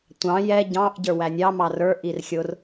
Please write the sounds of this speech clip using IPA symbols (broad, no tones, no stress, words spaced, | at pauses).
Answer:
tʷɑ̃ jɛ ɟɑ̃ʔ ɟə˞wænʲɑ mɑrə˞ ʔirxʲʊr